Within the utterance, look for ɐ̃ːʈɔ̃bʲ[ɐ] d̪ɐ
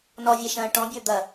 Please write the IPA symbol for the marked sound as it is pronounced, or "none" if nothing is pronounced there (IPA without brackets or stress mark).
ə˞